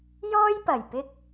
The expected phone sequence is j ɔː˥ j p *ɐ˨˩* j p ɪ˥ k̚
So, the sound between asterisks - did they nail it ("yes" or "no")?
yes